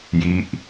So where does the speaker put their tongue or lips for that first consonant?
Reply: palate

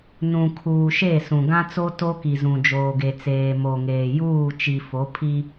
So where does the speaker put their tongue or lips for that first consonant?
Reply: tongue tip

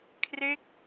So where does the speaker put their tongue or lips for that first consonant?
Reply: velum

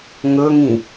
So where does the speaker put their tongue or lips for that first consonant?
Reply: velum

